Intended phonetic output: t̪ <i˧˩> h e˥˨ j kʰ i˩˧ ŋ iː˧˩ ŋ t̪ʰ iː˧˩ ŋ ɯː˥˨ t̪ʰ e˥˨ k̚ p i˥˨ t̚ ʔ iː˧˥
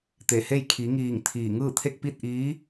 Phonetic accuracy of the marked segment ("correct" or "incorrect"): incorrect